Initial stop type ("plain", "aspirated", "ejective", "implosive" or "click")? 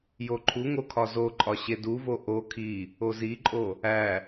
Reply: click